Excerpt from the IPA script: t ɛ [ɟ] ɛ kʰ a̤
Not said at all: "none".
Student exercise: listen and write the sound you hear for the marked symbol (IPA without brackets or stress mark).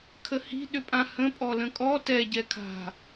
ɟ